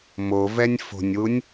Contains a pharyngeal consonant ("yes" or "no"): no